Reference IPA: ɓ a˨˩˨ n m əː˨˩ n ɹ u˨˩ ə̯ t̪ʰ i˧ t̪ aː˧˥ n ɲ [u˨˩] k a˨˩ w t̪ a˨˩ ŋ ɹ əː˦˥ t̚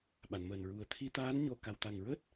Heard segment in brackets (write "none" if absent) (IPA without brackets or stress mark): o˨˩